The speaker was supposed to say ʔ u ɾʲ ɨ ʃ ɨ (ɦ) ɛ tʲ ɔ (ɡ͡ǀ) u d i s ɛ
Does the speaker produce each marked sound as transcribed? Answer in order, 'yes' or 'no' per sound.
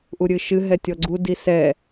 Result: yes, yes

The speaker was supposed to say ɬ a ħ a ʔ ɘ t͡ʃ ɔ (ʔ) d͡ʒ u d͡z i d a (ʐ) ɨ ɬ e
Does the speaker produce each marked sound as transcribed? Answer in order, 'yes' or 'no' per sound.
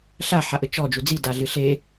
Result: no, no

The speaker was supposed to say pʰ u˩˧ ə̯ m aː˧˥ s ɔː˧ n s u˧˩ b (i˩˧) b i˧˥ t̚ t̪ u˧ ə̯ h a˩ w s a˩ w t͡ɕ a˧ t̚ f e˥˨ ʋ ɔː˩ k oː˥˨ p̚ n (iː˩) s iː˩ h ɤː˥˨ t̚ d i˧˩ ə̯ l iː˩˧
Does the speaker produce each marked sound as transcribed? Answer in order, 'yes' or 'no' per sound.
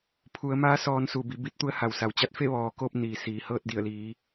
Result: yes, yes

